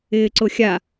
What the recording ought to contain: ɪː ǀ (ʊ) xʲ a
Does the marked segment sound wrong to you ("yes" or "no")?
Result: no